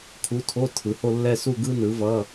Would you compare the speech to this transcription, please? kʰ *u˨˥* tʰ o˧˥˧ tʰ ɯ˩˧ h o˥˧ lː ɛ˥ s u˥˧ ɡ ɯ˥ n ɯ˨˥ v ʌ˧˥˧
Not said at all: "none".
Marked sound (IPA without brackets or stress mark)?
u˨˥